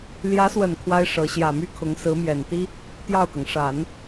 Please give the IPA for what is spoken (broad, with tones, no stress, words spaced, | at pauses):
ljä˧˥swə˨˩n kʰwa˥ɪ̯ʂɤ˧˥ ɕjä˨˩my˥kʰʊ˧˥ŋ sɹ̩˧˥mjɛ˨˩nt̪i˥ | t̪jɑ˥˩ʊ̯kɤ˩ŋ ʂa˨˩˦n